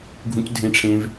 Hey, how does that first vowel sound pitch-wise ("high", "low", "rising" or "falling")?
high